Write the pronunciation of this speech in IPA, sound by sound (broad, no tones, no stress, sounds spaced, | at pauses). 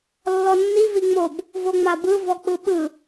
lː ɔ nː i v i ŋ͡m o b | v o ŋ͡m a b ɯ v ɔ k͡p ɯ ɓ ɯ